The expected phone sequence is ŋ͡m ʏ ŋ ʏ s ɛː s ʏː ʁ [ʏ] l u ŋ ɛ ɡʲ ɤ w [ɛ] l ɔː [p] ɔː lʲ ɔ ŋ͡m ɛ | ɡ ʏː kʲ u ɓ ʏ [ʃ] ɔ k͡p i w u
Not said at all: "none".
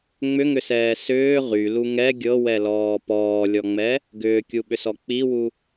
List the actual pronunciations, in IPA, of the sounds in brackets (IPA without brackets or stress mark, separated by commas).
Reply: y, ɛ, p, s